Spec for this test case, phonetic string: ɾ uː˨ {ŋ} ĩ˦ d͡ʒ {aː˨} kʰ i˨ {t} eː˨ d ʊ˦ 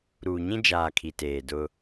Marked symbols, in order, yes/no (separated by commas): no, yes, yes